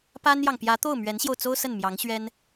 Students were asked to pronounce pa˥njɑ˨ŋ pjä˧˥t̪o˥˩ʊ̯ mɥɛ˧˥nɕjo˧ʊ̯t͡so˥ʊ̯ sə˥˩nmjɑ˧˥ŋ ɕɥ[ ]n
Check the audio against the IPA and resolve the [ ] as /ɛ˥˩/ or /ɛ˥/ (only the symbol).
ɛ˥